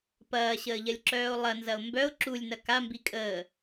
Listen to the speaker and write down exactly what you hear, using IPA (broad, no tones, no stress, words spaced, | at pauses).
pɐːɕəːʎɐlʲǁœːo̯ lˠɐnzɐo̯ mbœo̯ ǁulʲnɐ kambi kʼəː